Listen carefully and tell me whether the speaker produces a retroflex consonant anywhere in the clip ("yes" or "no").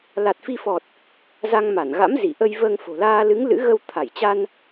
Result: no